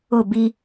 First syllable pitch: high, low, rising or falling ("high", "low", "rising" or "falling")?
falling